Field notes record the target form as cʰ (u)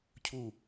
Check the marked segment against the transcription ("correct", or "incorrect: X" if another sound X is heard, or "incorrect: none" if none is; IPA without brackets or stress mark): correct